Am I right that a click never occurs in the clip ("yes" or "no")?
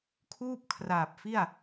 yes